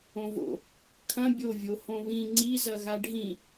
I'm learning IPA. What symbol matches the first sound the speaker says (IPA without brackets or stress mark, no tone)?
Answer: õ